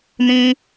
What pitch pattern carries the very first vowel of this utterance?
high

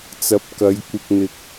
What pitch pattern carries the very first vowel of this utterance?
rising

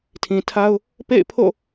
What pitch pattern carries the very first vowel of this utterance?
low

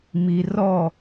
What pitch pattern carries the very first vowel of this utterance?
low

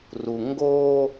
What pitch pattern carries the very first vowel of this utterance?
low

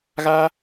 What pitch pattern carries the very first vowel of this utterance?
high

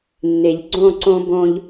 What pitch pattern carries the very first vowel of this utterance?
low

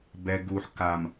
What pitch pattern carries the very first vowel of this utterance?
low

